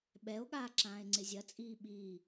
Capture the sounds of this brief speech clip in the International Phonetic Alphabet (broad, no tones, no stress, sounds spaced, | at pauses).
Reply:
ɓ ɛ o̯ ɠ aː ǁ ãː e̯ ŋ͡ǀ ɪ zʲ ɐ t͡sʼ iː ɓ iː